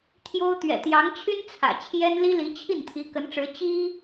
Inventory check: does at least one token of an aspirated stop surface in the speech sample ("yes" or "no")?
yes